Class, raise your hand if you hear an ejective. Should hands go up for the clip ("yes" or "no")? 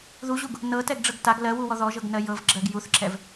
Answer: no